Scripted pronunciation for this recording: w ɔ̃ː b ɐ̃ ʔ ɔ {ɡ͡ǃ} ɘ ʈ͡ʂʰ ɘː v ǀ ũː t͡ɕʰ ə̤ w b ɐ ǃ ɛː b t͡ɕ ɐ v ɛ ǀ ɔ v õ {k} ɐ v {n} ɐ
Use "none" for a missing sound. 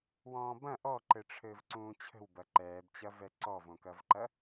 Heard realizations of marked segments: ǃ, k, ǃ

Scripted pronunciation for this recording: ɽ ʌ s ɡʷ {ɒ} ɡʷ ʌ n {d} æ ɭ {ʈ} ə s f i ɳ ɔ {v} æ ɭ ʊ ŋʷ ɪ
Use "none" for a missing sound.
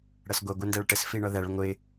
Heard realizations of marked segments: ʌ, d, ʈ, ð

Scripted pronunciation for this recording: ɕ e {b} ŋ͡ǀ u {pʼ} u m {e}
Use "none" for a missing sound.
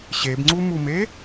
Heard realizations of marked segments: b, m, e

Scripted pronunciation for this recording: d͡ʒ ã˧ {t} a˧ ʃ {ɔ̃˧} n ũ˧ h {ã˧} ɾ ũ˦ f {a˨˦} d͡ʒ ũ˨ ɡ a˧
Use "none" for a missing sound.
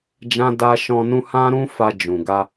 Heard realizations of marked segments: d, ɔ̃˧, ã˦, a˧

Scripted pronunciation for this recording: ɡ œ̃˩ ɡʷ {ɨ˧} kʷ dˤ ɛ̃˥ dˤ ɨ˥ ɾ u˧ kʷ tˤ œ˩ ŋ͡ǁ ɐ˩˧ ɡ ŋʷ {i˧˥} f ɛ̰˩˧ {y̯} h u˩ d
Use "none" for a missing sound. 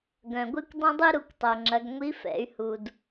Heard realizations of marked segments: ɨ˧, i˧˥, y̯

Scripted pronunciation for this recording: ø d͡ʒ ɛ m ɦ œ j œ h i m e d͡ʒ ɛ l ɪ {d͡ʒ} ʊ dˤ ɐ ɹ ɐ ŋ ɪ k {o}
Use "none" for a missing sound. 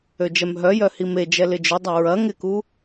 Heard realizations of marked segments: d͡ʒ, u

